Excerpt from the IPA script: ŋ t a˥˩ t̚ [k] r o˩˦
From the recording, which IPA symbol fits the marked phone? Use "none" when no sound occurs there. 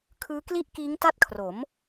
kʰ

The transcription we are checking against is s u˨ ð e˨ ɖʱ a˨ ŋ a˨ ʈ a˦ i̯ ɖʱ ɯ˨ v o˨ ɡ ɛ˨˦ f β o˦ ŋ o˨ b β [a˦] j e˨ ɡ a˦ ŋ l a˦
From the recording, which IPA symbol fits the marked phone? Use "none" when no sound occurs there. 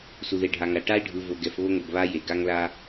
a˦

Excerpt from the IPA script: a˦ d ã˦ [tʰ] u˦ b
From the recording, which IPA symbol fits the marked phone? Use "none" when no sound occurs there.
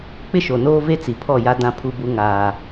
pʰ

